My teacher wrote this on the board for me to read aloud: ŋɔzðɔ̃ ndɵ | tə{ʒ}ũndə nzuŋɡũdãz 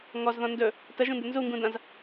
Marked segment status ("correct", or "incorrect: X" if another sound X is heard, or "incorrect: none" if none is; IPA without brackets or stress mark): correct